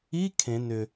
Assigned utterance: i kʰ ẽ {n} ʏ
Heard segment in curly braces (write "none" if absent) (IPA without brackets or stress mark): n